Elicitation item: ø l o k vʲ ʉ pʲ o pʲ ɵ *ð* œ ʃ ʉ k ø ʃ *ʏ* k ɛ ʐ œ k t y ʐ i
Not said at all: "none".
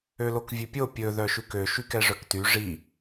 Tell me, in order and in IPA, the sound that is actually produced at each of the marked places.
ð, y

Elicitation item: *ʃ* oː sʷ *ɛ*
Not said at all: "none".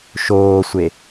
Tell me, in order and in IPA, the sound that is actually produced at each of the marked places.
ʃ, e

